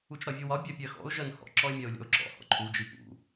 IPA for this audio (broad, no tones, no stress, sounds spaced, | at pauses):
u t͡ʃ ɾ ɒ vʲ u w ɒ bʲ ɜ pʲ ɜ x ɔ̰ ʊ̯ ʒ ɜ n h ɔ̰ ǁ ɔ ɪ̯ mʲ ɜ ʊ̯ lʲ ɔ̰ ʊ̯ ǁ ɔ̰ h ɔ̰ ǃʰ u d͡ʒ i p ṵ